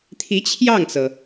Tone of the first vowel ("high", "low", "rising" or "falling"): rising